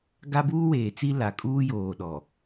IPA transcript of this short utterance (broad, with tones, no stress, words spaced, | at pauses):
ɡa˦buː˦weː˨t͡si˦ la˨kʼuː˦joː˨ ɗɔ˨